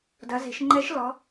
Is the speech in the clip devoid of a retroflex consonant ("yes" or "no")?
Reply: yes